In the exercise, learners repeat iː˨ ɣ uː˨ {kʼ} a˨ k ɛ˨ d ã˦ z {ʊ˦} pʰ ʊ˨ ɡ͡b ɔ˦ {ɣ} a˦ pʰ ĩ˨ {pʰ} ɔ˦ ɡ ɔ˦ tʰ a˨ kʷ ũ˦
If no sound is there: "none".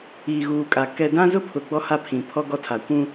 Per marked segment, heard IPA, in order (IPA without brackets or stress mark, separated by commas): kʼ, ʊ˦, h, pʰ